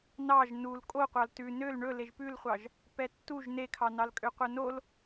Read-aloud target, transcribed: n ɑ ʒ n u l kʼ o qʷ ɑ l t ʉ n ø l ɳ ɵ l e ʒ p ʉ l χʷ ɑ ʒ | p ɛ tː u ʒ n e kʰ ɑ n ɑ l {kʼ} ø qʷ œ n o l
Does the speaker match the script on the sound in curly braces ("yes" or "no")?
yes